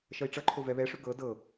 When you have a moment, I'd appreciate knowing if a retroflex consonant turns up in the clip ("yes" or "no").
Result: yes